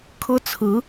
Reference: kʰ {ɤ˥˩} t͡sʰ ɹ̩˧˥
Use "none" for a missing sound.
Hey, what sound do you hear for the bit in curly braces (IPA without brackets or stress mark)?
ɤ˥